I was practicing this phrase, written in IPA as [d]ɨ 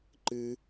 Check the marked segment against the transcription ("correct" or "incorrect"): incorrect